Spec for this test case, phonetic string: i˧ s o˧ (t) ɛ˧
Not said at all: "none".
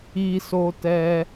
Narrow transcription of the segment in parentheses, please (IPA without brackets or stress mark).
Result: t